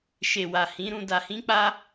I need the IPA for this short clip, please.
ʃ e˨ w a˨ h ĩ˨˦ ɾ ũ˧ d a˧ h ĩ˦ k͡p a˦

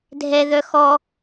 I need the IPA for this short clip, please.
dʱ ɛ ð œ x ɔ

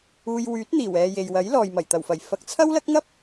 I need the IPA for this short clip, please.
uː˧ j w yː˨˥ t̚ n̪ iː˨˩ w ɛː˨ j e˨ j w ɐ˨˥ j l ɔː˨ j m ɐ˨˩ j t̪ ɐ˨˩ w f ɐ˨˩ j f ɐ˨˥ k̚ t͡sʰ ɐ˥ w l ɐ˥ k̚ ŋ ɐ˥ p̚

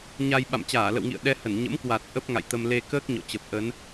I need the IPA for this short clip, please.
ɲ a˧ j ɓ a̰˧˨ m t͡ɕ aː˧˩ l ə̰˧˨ w ŋ ḭ˧˨ ə̯ ɗ ɛ˧ h ə˧˩ n ɲ ə̰˧˥ m k w a˨˩ t̚ ʔ ə˦˥ p̚ ŋ a̰˧˨ j t̪ ə˧ m l e˧ k əː˦˥ k̚ ɲ ɔ̰˧˨ t͡ɕ ə˨˩ p̚ ʔ ə˨˦ n

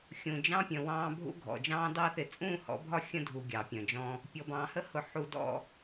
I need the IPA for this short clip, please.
xʲ ũ˨ d͡ʒ ɑ̃˦ pʲ ə̃˨ w ɑ̃ː˦ bʱ ṵ˦ ɡʱ ɔ̰˨ d͡ʒ ɑ̃ː˦ d ɑ˦ θ ɪ˨ t͡sʼ ũː˦˨ h ɔ̰˨˦ bʱ ɒ˦ xʲ ə̃˦ dʱ u˨ ɡʲ ɑ˨ pʲ ə̃˨ d͡ʒ ɔ̃˦ | pʲ ɔ˨ b ɑ̃ː˨ h ə˦ h ʊ˨ ħ u˨ d ɔ̰˨

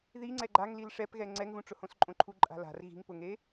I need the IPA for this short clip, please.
ð i ŋ͡ǀ ɛ ɡ͡ǃ a ŋ l i l ʂ ɛ p ɣ ɛ ŋ͡ǀ ɛ ŋ ɣ ũ ʈ͡ʂ ʊ h õ s ǃʼ õ ǃʰ u ǃʼ a̤ l a̤ r ɣ i̤ ŋ p ʊ ŋ e

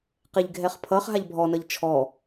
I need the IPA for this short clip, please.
q e ʎ ɡʱ ɛ χ pʰ ʌ χ ɦ a ʎ bʱ ɔ n ʌ ʎ t͡ʃʰ ɔ

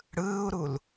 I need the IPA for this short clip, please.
ɽ ɯː u̯ ɾ u l

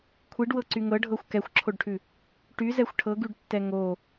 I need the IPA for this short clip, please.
kʷʰ i ɖ w ɤ ǀ y ŋ ɤ ɖʱ ɤ xʷ k ɛ xʷ ǁʰ o ɖ ʈʰ ʉ | ʈ y z ɛ xʷ ʈʰ ɤ ɡ y ɖ tː ɛ ŋ o

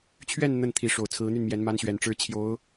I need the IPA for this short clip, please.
t͡ɕʰ ɥ ɛ˥˧ n n̪ ə˥˩ n t̪ʰ i˧˥ ʂ o˨˩ ʊ̯ t͡sʰ ɹ̩˧˥ n̪ y˥˩ n m j ɛ˧˥ n m a˥ n ɕ ɥ ɛ˨˩ n ʈ͡ʂ ɻ̩˥ t͡ɕʰ j o˧˥ ʊ̯

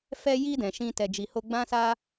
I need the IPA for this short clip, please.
f ɛ˧ j i˧ d ɛ̃˨ ʃ ĩ˧ t ɛ˨ d͡ʒ i˨ h o˧ ɡ͡b ã˦ s a˧

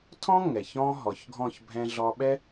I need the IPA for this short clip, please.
tʰ ɔ̃˥ ŋ ɛ˩ ç ɔ̃˥ ɦ ɔ˩ ç ɡʱ ɔ̃˥˩ ç bʱ ɛ̃˧ ɮ ɔ˧ ɓ ɛ˥

